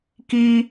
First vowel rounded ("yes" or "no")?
no